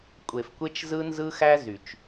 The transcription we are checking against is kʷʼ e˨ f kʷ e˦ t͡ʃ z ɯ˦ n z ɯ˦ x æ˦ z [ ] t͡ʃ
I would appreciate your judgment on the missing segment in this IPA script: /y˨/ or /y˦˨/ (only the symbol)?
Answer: y˨